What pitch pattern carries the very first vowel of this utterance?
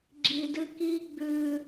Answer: low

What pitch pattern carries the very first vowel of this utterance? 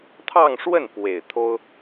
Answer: falling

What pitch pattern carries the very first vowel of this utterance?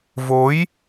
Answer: rising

